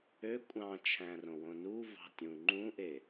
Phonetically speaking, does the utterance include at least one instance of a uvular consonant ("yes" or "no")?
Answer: no